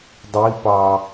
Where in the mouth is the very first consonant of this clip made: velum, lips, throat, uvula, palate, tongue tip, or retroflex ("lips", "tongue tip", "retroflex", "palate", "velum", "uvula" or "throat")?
tongue tip